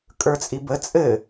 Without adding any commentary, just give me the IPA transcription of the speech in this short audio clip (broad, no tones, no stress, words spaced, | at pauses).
kʼə˞t͡sʼibə t͡sʼɘ